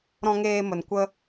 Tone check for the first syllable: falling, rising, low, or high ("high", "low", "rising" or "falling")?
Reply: high